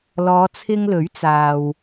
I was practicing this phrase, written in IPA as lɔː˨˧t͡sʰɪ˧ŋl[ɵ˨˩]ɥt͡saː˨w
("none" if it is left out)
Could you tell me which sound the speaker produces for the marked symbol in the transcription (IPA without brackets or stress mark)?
ɵ˨˥